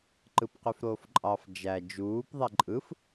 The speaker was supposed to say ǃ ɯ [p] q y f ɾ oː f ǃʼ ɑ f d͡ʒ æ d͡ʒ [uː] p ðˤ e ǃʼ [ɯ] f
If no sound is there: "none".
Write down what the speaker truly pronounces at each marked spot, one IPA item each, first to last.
p, uː, ɯ

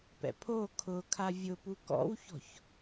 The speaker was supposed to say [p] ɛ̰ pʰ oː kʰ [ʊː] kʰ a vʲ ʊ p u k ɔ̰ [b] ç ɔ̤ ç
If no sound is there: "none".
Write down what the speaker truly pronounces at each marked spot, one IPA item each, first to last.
p, ʊː, w

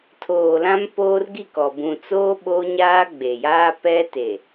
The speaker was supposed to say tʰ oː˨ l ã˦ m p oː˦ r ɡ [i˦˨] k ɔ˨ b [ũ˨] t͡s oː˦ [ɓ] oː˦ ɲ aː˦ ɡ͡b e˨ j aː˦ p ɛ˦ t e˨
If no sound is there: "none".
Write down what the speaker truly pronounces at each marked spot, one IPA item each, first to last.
i˦˨, ũ˨, ɓ

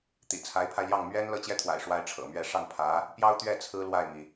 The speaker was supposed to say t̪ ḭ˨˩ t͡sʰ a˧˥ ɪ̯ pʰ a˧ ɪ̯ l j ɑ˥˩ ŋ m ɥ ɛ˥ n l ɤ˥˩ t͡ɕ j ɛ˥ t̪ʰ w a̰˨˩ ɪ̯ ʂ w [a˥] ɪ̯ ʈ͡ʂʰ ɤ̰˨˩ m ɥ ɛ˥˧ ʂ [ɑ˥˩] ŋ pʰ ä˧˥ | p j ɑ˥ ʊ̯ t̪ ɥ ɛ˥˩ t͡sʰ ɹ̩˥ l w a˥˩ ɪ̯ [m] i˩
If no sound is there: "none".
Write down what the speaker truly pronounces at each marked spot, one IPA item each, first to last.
a˥, ɑ˥˩, m

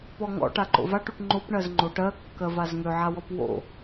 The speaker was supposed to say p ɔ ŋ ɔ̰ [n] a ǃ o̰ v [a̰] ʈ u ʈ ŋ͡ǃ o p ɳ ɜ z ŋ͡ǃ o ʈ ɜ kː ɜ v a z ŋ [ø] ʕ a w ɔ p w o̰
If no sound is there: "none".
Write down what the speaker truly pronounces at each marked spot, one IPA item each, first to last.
ʈ, a, ø

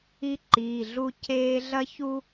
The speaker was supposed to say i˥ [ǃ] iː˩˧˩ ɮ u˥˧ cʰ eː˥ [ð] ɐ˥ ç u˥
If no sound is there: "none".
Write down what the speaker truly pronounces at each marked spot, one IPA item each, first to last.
ǃ, ɮ

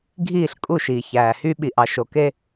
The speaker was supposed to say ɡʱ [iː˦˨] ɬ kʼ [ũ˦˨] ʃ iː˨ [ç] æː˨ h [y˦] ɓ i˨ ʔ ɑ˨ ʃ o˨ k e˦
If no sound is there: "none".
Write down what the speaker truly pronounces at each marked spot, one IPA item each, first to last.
iː˦˨, u˦˨, ç, y˦

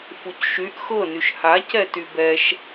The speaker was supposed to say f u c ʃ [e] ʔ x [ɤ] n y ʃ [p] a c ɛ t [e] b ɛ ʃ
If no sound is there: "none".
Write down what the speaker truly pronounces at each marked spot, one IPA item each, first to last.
y, ɤ, h, y

